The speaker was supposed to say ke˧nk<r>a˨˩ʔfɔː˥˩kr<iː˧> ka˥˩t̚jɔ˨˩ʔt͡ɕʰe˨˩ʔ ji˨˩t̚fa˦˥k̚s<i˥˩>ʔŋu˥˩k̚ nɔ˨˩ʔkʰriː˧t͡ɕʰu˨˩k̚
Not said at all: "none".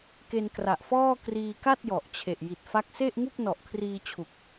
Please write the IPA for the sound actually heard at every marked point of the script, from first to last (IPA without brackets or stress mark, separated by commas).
r, iː˧, e˥˩